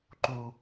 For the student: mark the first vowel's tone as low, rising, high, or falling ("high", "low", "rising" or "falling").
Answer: high